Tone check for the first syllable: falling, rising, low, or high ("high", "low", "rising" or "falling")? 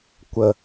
low